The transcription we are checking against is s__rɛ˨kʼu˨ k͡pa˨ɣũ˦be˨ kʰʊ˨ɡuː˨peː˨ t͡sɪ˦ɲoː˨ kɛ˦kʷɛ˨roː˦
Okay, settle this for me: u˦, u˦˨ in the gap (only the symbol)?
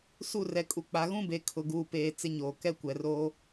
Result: u˦˨